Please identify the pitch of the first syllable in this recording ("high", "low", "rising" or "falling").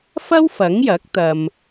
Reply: high